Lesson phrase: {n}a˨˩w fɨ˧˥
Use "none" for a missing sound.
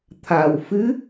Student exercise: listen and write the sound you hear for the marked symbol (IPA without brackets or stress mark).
t̪ʰ